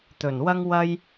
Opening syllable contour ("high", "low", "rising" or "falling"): low